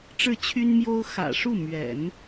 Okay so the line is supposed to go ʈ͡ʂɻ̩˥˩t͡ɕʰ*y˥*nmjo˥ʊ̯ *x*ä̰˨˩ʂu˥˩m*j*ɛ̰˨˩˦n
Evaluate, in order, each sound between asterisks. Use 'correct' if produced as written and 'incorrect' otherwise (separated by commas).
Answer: correct, correct, incorrect